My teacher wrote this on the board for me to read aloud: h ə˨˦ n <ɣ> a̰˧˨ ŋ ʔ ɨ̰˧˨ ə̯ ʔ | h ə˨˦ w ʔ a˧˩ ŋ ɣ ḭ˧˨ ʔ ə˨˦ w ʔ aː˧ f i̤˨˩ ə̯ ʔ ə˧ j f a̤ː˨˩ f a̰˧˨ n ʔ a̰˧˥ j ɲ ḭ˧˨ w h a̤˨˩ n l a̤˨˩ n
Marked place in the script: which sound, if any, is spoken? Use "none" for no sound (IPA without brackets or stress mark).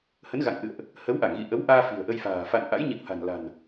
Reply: ɣ